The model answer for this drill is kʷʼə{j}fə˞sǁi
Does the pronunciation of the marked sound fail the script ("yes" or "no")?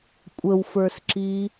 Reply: yes